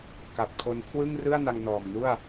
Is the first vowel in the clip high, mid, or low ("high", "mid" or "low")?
low